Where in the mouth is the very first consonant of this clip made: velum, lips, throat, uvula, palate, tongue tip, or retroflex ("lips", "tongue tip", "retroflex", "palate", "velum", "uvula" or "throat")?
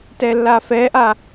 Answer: tongue tip